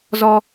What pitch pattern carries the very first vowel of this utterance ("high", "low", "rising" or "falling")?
high